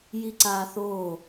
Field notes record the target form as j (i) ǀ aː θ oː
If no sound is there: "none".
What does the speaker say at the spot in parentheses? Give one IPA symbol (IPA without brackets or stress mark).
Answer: i